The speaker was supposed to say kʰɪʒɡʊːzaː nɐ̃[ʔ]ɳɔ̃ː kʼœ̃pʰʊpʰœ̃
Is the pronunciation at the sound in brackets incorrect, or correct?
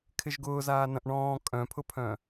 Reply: correct